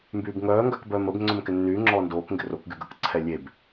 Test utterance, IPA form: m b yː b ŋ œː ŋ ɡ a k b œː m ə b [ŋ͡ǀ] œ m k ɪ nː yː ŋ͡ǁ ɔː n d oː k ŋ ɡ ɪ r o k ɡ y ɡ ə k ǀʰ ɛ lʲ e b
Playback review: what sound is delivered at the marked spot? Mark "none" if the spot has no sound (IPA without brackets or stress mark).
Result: ŋ͡ǀ